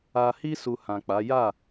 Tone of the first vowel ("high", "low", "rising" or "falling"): low